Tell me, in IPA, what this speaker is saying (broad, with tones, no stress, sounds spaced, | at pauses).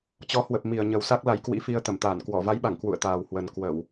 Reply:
t͡ɕ ɔ˨˦ h w ə˨˩ p̚ m i˨˩ ə̯ ɲ ə˨˩ w s a˦˥ k̚ l a˨˦ j k w ḭ˧˥ f i˧ ə̯ t̪ ə˧˩ m t̪ aː˧˩ n k w ɔ˧˩ v a˨˦ j ɓ a˧˩ ŋ k w ṵ˧˨ ə̯ t̪ aː˨˩ w h w ə˨˩ n k w ə˧˩˨ w